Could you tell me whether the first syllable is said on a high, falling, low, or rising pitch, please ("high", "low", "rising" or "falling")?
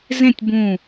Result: falling